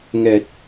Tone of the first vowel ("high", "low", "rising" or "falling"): low